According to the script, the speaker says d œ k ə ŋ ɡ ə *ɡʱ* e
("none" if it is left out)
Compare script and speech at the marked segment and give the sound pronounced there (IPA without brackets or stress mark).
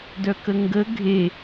ɡʱ